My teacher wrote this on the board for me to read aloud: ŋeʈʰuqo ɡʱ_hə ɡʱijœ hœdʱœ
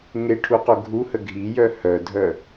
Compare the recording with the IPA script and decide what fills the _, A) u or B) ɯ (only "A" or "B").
A